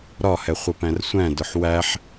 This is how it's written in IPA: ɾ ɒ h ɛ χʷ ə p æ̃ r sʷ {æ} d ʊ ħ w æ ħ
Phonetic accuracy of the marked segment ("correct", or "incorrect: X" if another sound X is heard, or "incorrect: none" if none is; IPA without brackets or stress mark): incorrect: æ̃